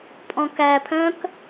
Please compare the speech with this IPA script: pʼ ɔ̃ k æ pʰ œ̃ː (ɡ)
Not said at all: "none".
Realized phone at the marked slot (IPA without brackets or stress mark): k